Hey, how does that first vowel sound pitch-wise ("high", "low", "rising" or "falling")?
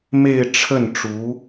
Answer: falling